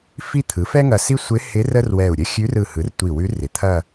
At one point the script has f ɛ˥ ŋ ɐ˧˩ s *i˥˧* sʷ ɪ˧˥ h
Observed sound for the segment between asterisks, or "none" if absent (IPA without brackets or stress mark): i˥